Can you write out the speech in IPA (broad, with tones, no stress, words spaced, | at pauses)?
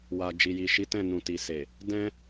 wa˨ d͡ʒi˨ji˨ʃi˨˦tɛ̃˦˨ nũ˨ti˨se˨ | dɛ̃˦